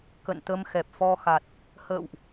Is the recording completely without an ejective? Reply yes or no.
yes